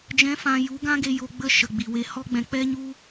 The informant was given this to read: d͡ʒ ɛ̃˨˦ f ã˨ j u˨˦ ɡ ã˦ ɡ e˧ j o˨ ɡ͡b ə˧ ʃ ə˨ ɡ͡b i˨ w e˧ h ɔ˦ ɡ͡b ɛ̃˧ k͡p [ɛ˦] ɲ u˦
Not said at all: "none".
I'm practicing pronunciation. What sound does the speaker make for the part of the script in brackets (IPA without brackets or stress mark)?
ɛ˦